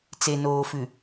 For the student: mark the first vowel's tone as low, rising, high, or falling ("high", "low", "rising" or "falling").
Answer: low